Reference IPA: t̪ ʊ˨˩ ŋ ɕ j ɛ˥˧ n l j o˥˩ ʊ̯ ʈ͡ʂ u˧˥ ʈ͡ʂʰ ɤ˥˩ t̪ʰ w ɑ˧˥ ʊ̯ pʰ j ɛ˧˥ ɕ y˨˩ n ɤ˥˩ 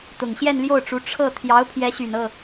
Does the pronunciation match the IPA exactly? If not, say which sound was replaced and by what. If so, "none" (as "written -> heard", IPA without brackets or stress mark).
w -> j